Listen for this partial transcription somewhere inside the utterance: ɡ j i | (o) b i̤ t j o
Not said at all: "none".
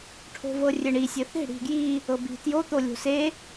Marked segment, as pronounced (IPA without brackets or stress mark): ɤ